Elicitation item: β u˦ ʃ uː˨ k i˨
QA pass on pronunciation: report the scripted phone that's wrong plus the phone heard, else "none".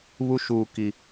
none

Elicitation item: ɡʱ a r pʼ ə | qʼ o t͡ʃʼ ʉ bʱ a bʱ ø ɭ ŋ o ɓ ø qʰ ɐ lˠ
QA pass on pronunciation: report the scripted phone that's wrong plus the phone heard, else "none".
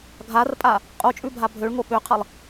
ə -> a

